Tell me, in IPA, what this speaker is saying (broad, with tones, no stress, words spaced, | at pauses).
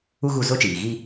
u˦ɣu˦˨zo˦t͡ʃiː˨ ɣi˦